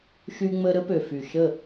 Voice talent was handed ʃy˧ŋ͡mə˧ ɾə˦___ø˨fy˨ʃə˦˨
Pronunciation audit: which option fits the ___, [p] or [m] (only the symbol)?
p